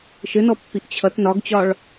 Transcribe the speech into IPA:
ʃ ɘ n ɔ pː i ʔ t͡ɕʰ ʌ t n ɒ ɡ t͡ɕ ɒ ɭ

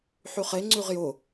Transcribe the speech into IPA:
ħ y χ e ŋ͡ǀ y ʁ j ʊ

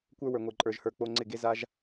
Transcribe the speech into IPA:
kʷ ə˞˦ w ə˞˨ ŋʷ e˨ ǃʼ ə˞˨ ʒ h ə˞˨ k͡p o˧ ŋ͡ǀ ɪ˦˨ ɡ e˦ z a˦ ʒ

